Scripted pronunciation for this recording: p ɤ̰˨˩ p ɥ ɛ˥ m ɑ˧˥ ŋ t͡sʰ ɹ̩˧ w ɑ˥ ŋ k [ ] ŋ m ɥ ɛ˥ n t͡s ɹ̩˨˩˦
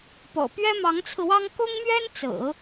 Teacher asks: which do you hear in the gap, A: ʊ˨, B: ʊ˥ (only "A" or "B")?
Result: B